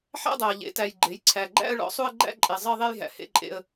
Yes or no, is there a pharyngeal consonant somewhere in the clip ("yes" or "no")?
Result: yes